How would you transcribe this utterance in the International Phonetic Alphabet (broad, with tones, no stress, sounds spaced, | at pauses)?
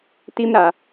t i˦ m ɾ a˨